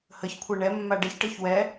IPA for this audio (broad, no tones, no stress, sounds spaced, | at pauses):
h ə ç kʷʰ ɤ ɳ ɛ mː a ɖ ɛ ç ʈ ɤ ç w ɛ